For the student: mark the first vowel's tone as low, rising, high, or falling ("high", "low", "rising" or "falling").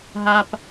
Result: low